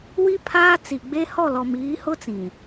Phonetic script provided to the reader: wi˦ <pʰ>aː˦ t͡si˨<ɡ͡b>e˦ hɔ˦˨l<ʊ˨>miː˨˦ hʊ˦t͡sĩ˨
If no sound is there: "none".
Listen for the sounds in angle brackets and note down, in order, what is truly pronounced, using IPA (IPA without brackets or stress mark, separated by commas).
pʰ, ɡ͡b, ɔ˨